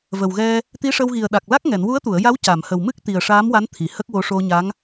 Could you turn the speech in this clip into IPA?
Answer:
v ə˨˩ w ɣ ɛ˧ | t̪ i˧˥ ʂ ə˧ w ɣ i˨˩ ə̯ ɗ a˨˩ k̚ l a˦˥ k̚ ŋ ɛ˨˩˨ n w u˧˥ ə̯ t̪ u˨˩˨ ə̯ j a˧˥ w c a˨˩˨ m h ə˨˩ w m ɨ˦˥ k̚ t̪ i˨˩ ə̯ ʂ aː˧˥ m w a˧˥ n t̪ʰ i˨˩˨ h ə˦˥ k̚ w o˧˥ ʂ o˧ ɲ a˧˥ ŋ

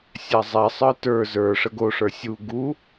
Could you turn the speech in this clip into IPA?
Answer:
sʲ a zˤ ɛ sˤ ə˞ t ə˞ z ə˞ ʂ ə ɡ o ʂ ə˞ sʲ u ɡ u

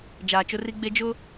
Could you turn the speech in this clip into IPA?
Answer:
d͡ʒ aː˨ t͡ʃ ʊ˦ r i˦ ɡ͡b e˦ d͡ʒ ʊ˦

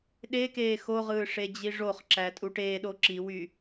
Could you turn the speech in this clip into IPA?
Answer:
ɗ e k eː x o ʁ ɯː ʂ e d͡ʑ i ʐ o χ ǁ æ tʼ u ʈ eː ɗ o ǁ i w yː

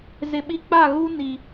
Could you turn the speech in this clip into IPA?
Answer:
z ɪ˨ ɓ i˦ k͡p a˦˨ ɣ u˦ n i˨

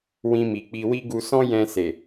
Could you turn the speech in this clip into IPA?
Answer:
w ĩ˧ m i˨ k͡p i˧ w i˦ ɡ u˧ s ɔ̃˦ j ɛ̃˧ s e˨

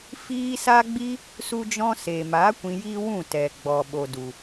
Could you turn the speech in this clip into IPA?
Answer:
f iː˦ s a˦ ɡ͡b i˦ | s u˦ d͡ʒ ɔ̃˦ s eː˨ m aː˨˦ kʷ ĩ˧ j iː˦ w ũ˦˨ t ɛ˨ ɡ͡b ɔ˨ ɓ o˨ d u˨

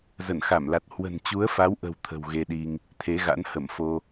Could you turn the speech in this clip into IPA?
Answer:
z ə˧˩ n x a˧˩ m l a˨˩ t̚ h w ə̤˨˩ n t͡ɕ u˨˦ ə̯ f a˨˦ w ʔ ə̤˨˩ w t̪ʰ ə̤˨˩ w ɣ e˧ ɗ i˧ ŋ | t̪ʰ e˨˦ ɣ a̰˧˥ n h ə˧˩ m f o˧

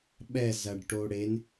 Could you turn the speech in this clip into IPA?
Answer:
ɓ ɛ z ɐ ɖ ʈ o ɽ e n

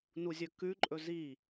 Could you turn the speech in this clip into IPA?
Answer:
n u zʲ ɵ k ʉ ǃʼ ɵ z i

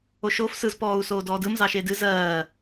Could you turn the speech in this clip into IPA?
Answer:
o ʃ oː f s ɯ z p ɔː u̯ s oː d ɔː d ɯ m z ɑ ʃ e d ɨ z ɜː

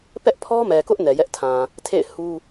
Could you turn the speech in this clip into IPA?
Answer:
p ɛ˦ ʔ pʰ ɔ˦ m ɛ˨ k ʊ˦ ʔ n ɛ˨ j ɛ˦ ʔ tʰ ã˨ | tʰ ḛ˦˨ ɪ̯ h u˦

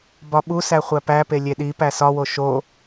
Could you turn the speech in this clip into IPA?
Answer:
b ɒ ɓ u s æ χʷ æ p æ p e lʲ e ɗ i p æ s ɒ w o ʃ o

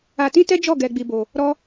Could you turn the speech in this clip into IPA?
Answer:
a˧ t ĩ˦ t ɛ˦ d͡ʒ ɔ˦˨ ɡ ɛ˧ ɡ͡b i˧ b o˧ | ɾ ɔ˦

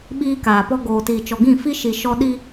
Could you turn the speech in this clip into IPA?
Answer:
ɓ iː˦ k aː˨ p ɔ˦ ɡ oː˨ t iː˨ t͡ʃ ɔ˨ ɡ ĩ˦˨ f i˦ ʃ i˨ ʃ ɔ˦ ɗ i˦

